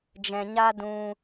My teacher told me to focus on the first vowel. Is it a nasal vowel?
yes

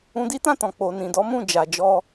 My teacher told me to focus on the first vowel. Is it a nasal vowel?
yes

